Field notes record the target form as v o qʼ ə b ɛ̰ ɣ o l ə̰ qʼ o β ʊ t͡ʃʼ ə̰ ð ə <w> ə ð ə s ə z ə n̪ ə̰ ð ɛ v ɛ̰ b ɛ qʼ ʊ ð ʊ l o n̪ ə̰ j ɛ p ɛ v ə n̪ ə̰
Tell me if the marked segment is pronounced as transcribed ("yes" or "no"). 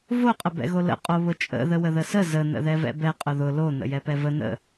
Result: yes